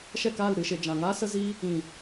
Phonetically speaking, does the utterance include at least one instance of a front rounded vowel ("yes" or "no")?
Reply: no